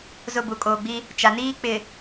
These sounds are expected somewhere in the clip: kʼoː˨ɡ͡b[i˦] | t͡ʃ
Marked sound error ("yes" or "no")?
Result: no